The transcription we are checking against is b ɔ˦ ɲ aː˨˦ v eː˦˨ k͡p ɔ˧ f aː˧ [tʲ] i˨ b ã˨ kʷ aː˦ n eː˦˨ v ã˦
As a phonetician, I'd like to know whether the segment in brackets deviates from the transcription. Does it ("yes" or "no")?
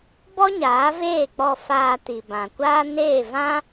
yes